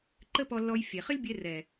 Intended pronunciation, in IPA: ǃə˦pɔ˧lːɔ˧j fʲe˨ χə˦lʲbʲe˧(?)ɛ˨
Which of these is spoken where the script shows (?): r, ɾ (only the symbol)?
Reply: r